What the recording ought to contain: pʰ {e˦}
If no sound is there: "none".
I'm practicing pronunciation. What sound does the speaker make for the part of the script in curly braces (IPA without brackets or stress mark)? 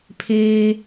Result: eː˦